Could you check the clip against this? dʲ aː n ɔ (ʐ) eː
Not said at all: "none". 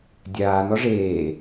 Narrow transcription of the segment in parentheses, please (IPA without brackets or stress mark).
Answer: ʐ